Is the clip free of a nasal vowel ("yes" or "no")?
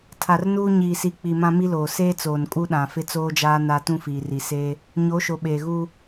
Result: no